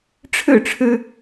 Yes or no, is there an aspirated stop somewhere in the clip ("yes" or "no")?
yes